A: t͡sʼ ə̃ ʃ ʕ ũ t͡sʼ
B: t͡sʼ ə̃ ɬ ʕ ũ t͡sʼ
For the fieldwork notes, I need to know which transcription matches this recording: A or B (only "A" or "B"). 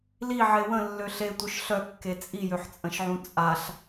A